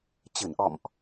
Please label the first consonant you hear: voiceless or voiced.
voiceless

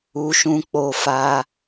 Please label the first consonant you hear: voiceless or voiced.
voiceless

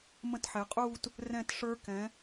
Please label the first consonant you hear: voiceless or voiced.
voiced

